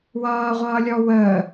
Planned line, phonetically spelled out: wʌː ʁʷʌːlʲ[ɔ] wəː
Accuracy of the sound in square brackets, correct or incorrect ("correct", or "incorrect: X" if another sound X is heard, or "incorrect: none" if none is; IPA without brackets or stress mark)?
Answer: correct